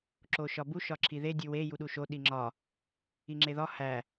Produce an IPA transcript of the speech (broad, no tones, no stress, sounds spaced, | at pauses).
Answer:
ǁ o ʃ ɒ b u ʃ ɒ ǁʰ i ð e dʲ u w e j u ɗ u ʃ o ɗ i ŋ͡ǁ ɒ | i ŋ͡ǁ e ð ɒ h æ